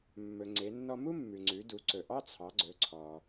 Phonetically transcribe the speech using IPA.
mːɵ˩ŋ͡ǀe˩˧nːɔ˧ mu˥mːʉ˩ŋ͡ǀʉ˩˧ du˩˧ǀɵ˩ʔɑ˥ t͡sʰɑ˩˧ɡ͡ǀɵ˩˧ǀʰɔ˩

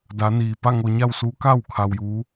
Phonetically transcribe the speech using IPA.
da˩˧niː˩ pa˥˨ŋo˧ɲa˥˨wsuː˧˥ ka˥˨w kʰa˧wjuː˧˥

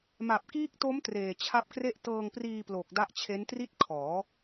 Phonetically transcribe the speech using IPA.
ma˨˩p̚kiː˦˥k̚to˦˥m treː˨˩t͡ɕʰa˦˥p̚kre˥˩ʔ tɤː˧ŋpriː˧plo˨˩k̚ da˦˥ʔt͡ɕʰe˦˥ntri˥˩t̚ kʰɔː˩˦

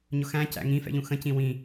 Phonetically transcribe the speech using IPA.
ɲʊxæ̃ cæ̰ŋĩ fɛ̰ʎũxə̃ cĩwĩ

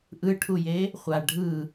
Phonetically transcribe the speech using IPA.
ʔɯʈʰuje | χʷa ɖʱɯ

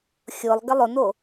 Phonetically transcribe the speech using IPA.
xʲʊlˠ ɡəlˠʊno

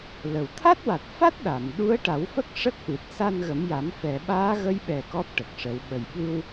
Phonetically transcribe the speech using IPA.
lə˨˩w t̪ʰa˦˥t̚wa˨˩t̚fa˦˥t̚ ɗa˨˩˨m ɗu˧˥ə̯ʈa˨˩˦wfə˦˥k̚ ʂə˦˥k̚ʔɨ˨˩t̚ sa˧n ɣə˨˩˦mja˨˩˦m fɛ˨˩˨ɓaː˧˥ɣə˧˥jɓɛ˨˩ kɔ˦˥p̚ʈə˨˩k̚ʂə˨˩˦w ɓə˨˩jɓɨ˧w

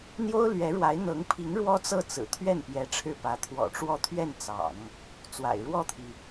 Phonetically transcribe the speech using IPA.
n̪jo˥ʊ̯ lɥɛ˧˥ɻwa˧˥ɪ̯n̪ɤ˧˥ŋpʰi˧˥ŋ ɻwɔ˥t͡sɤ˥˩t͡sɹ̩˨˩ t̪ʰɥɛ˥˩npjɛ˧˥ ʈ͡ʂʰɻ̩˥˩pä˧˥ t̪ʰwɔ̰˨˩ʈ͡ʂwɔ˥˧t̪ʰɥɛ˥˩n t͡sɑ̰˨˩˦ŋ | t͡swa̰˨˩ɪ̯ ɻwɔ˥˩t̪ʰi˩

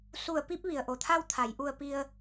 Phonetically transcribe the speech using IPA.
su˧˩ə̯pi˧p̚ ʋi˩ə̯ʔo˩˧t̪ʰa˥˨w t̪ʰa˩˧jʔu˧ə̯ pi˧ə̯

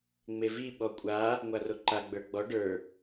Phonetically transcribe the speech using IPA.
ŋ͡mevi ɓɔkʷʼa | ŋʷaroǃa ɡ͡bə˞ɡ͡bɔ ɖə˞

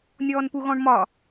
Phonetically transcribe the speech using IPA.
nʲɔːnpuɣɔ̃ɳmɒ

